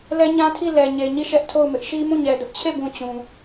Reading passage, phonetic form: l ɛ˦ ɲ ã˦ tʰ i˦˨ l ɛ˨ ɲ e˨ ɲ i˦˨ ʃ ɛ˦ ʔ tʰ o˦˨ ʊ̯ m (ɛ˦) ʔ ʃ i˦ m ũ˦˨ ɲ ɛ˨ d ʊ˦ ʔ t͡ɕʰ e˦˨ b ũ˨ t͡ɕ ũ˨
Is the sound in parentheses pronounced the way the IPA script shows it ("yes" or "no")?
no